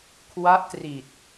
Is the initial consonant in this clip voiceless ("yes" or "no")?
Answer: yes